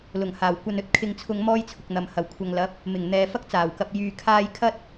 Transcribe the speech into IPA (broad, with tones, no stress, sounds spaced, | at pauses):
l ʊ˨˩ ŋ h aː˨˩ w kʷ ɐ˧ n ɵ˧ t̚ kʰ ɪ˧ ŋ t͡sʰ ʊ˧ ŋ m ɔː˥ j t͡sʰ ʊ˨ k̚ n̪ ɐ˨ m h ɐ˨˩ w kʷʰ ɐ˨ ŋ l ɐ˨˥ p̚ | m ɪ˨˩ ŋ n̪ ɛː˨ f ɐ˥ k̚ t͡s aː˨˩ w k ɐ˨ p̚ j yː˨ kʰ aː˧ j kʰ ɐ˥ t̚